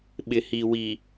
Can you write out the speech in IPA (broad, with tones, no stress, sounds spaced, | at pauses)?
ɓ ɪ˨ h i˨ w i˨